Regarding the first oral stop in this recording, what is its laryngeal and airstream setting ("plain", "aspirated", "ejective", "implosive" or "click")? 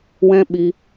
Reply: implosive